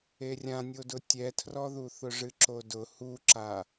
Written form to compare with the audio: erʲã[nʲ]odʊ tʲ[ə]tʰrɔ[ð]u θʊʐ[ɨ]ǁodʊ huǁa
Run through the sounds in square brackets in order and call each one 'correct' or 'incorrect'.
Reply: correct, incorrect: ɛ, correct, correct

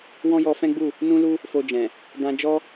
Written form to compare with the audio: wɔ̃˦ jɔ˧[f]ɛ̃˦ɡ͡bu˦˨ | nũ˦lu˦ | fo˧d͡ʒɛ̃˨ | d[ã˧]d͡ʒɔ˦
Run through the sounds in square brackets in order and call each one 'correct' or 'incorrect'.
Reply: correct, correct

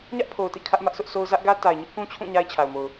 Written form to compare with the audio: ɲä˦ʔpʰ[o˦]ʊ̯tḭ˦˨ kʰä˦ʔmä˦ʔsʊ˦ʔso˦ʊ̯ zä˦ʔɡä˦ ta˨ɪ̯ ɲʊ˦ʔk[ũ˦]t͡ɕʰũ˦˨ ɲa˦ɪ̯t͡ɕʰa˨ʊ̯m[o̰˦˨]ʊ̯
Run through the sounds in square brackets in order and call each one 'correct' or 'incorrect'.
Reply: incorrect: o˨, correct, incorrect: o˨

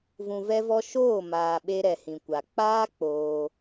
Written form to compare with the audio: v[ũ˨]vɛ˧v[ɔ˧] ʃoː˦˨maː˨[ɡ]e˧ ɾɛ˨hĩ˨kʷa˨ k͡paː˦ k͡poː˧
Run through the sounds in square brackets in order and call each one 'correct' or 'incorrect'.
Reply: correct, correct, incorrect: ɓ

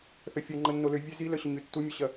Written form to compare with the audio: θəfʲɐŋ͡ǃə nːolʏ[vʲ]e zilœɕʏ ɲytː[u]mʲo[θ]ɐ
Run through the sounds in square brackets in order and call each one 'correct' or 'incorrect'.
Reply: correct, correct, incorrect: ɕ

